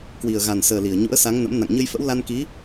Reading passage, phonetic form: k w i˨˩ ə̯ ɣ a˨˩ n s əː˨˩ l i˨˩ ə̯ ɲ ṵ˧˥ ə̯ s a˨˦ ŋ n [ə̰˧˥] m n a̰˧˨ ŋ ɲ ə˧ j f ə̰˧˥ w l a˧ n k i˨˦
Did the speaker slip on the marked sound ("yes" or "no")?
no